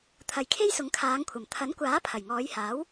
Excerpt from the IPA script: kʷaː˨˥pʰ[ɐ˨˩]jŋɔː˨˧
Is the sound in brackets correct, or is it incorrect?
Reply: correct